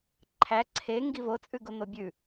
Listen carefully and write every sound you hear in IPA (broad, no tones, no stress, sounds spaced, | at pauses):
ǃʰ æ ǀʰ e ŋ ɡ i v o t͡sʼ ʉ ɡ o n̪ o bʲ ʉ